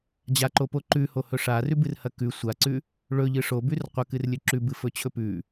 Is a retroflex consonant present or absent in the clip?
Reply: present